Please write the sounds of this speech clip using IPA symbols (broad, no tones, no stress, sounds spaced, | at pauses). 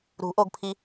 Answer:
ɾ ṳ ʔ o ɡ pʰ i